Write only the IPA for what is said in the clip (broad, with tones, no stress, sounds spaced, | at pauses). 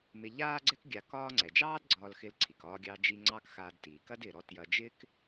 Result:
m ɪ˧ ʎ aː˥ ɡ͡ǀ ɛ˥ k ɡʲ a˧ k ɒː˥ ŋ͡ǀ ɛ˩ d͡ʒ ɑː˥ d ɡ͡ǀ ɒː˧ l x ɪ˧ l ǀʰ i˩ k ɒː˧ ɡʲ ɑ˧ d͡ʒ i˧ ŋ͡ǀ ɑ˥ k x aː˧ d t iː˩ k ɐ˥ d ɪː˩ ɾ ɔ˧ t j ɐ˧ d͡ʒ ɪː˥ k